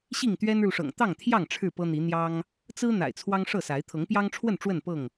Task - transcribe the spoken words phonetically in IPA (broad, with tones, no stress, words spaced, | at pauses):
ɕi˥˨ŋt̪ɥɛ˦nɻu˨ʂɤ̰˨˩ŋ t̪ɑ˥˨ŋt̪ʰjɑ˥˨ŋ ʈ͡ʂʰɻ̩˥˨pɤ˦n̪i˨˦ n̪jɑ˦ŋ | t͡sɹ̩˦ n̪a̰˨˩ɪ̯t͡sʰwɑ˦ŋʂɤ˥˨sa˨˦ɪ̯ t̪ʰɤ˨˦ŋpjɑ˦ŋʈ͡ʂʰwə˥˨n ʈ͡ʂwə˥˨npɤ˥˨ŋ